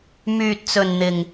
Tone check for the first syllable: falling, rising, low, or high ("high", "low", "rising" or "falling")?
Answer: low